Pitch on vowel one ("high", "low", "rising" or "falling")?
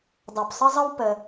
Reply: low